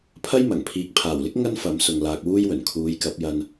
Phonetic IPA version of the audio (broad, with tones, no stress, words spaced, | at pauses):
pʰɐ˥jmɐ˨˩ŋ pʰiː˨k̚pʰaː˨˩wlɪ˥k̚ ŋɐ˥nfɐ˨˥msʊ˨ŋ laː˧k̚wuː˥jwɵ˨˩n kʰuː˨˧jkɐ˨˥p̚jɐ˧n